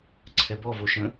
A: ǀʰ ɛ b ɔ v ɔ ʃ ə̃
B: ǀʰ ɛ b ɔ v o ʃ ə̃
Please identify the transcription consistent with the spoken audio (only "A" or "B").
B